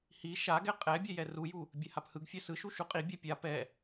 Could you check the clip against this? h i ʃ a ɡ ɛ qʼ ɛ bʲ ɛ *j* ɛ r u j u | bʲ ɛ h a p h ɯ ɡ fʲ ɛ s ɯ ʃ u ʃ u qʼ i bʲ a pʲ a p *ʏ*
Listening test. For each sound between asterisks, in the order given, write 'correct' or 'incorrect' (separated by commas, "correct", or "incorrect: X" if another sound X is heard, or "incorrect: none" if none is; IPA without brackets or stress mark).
correct, incorrect: ɛ